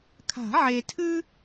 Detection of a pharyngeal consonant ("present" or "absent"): present